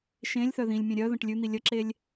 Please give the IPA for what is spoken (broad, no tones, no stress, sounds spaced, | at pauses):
ʃ ẽ lʲ θ œ ð ĩ lʲ mʲ ẽ ɾʲ œ ð ə̃ ʈ lʲ ʉ n̪ i lʲ ə ǁ e lʲ